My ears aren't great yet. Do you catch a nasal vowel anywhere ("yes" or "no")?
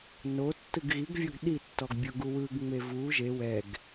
no